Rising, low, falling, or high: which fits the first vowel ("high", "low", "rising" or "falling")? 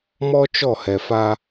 high